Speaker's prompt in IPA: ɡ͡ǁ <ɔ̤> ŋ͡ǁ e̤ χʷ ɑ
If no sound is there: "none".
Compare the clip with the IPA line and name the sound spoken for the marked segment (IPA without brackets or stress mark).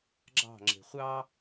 ɑ̤